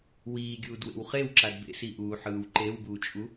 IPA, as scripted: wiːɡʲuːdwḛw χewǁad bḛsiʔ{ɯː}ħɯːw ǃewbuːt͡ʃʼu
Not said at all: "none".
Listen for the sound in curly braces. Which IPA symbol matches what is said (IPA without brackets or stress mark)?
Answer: uː